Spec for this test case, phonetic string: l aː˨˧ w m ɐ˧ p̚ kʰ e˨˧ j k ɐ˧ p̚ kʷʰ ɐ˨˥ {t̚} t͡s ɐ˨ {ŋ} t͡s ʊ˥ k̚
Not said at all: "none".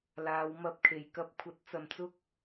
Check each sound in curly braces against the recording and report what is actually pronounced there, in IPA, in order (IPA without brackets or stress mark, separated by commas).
t̚, m